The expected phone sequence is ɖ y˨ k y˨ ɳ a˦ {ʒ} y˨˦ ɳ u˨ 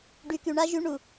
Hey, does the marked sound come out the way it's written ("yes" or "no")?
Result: yes